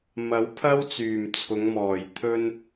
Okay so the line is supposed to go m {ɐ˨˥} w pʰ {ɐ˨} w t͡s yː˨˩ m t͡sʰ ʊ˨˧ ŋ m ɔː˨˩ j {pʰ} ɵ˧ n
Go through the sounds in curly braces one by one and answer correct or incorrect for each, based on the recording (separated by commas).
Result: correct, incorrect, incorrect